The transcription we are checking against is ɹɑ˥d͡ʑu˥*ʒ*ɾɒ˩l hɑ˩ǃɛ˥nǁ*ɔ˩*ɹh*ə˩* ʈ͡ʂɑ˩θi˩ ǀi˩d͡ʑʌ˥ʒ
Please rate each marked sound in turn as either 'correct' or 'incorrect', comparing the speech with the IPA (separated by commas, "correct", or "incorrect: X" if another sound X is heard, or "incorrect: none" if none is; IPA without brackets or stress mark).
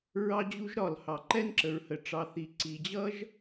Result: correct, incorrect: ə˩, correct